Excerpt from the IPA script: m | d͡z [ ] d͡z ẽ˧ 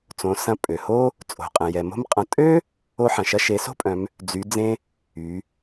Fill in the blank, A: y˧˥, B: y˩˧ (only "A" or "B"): B